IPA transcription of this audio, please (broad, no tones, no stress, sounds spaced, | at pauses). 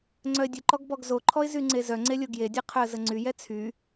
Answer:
ŋ͡ǀ œ ɪ̯ dʲ ə ǃ ɔ ɡ b ɔ ɡ z o ǃʰ ɔ ɪ̯ z y ŋ͡ǀ e z œ ŋ͡ǀ e lʲ o ɡ j e dʲ ɛ qʰ œ ə̯ z ə ŋ͡ǀ y j ɛ t͡sʰ y